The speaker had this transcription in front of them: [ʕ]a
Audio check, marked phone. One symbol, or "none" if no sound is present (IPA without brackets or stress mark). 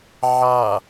ʕ